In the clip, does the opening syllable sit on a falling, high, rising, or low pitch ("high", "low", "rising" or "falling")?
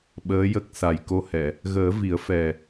rising